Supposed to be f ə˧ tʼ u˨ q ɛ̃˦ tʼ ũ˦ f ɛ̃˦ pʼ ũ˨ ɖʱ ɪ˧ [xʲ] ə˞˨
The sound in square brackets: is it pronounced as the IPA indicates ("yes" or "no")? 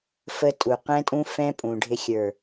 yes